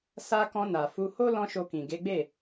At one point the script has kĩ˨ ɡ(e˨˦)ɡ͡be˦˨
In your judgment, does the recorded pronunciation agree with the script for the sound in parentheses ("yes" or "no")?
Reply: yes